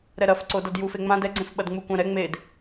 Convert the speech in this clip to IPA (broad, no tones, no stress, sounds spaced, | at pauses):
ɾ ɛ ɾ ɐ f ǀ o d ɐ d j u f e ŋ͡m ã d ɛ ɡ͡ǀ ẽ f ɓ ɐ d ŋ͡m u kʷ ã ɾ ɛ ŋ͡m e d